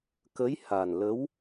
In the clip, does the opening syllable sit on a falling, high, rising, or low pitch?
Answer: rising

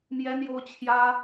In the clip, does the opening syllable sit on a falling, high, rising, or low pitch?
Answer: high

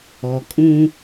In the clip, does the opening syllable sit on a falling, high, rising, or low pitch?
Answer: low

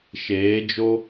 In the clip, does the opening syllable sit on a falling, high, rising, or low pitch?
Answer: rising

